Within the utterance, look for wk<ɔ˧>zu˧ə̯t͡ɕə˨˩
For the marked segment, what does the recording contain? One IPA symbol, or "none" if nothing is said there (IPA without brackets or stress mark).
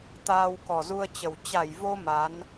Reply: ɔ˨˩